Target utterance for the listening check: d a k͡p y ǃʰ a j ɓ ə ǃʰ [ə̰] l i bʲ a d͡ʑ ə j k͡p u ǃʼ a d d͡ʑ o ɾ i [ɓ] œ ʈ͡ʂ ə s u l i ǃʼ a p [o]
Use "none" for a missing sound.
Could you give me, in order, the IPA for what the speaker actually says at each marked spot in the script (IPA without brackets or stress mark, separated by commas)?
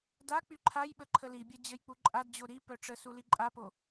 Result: ə, p, o